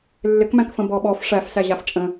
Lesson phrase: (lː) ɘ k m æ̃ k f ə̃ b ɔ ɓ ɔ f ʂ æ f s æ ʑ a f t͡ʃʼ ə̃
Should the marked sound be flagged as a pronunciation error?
no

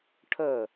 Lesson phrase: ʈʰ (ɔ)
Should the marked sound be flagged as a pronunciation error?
yes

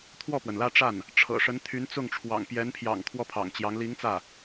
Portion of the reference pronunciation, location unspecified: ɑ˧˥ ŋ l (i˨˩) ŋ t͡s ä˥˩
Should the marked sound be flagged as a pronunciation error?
yes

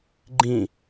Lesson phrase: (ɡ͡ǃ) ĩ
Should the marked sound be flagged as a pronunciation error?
no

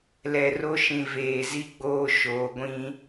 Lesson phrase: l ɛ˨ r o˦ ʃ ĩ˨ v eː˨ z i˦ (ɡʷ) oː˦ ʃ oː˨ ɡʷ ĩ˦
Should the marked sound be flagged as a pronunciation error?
yes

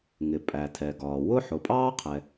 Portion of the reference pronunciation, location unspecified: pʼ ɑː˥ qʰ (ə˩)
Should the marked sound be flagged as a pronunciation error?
yes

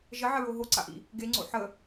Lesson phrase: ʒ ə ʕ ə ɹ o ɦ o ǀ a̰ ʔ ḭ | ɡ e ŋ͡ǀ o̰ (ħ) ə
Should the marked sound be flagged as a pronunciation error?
no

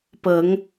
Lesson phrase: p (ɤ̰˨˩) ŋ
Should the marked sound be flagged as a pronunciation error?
yes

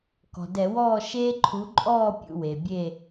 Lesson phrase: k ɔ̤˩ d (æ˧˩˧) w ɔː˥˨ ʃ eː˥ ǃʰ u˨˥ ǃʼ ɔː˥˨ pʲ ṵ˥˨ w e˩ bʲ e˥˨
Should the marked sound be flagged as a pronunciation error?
yes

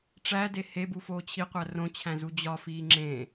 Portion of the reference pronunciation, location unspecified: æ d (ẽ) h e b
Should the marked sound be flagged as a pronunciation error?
yes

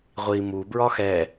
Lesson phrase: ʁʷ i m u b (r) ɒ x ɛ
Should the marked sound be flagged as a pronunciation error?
yes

